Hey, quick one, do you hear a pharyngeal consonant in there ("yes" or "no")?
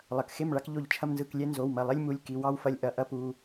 no